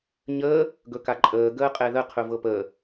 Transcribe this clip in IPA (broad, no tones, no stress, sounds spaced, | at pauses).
ɲ əː | ɡ ɵ k a ǃʼ əː ɡ əː qʼ ɛ ð ə qʰ ɵ v ɤ p əː